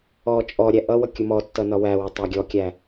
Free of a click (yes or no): yes